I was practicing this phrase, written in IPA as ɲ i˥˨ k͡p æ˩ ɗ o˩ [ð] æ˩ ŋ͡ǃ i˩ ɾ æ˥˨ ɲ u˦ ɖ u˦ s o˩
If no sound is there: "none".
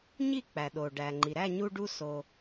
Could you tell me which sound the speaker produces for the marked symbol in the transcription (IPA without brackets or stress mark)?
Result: ɖ